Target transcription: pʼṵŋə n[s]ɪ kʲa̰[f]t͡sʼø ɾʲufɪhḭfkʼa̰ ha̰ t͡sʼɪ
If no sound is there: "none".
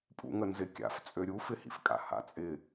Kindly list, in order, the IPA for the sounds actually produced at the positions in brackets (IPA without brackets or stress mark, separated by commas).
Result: z, f